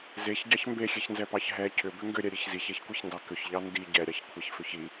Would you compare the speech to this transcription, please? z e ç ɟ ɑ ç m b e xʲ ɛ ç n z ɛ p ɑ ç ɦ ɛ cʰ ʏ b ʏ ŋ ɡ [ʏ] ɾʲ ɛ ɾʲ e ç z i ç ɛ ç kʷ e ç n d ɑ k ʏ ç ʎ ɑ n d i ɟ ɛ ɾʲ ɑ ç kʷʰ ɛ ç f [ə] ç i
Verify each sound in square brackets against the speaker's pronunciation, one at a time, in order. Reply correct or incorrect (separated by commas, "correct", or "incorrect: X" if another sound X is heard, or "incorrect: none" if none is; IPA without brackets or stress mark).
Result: correct, incorrect: ʏ